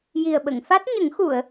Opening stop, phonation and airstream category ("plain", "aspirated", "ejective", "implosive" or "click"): implosive